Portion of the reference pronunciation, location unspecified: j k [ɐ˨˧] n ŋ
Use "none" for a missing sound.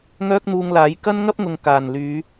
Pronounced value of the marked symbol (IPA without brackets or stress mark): ɐ˥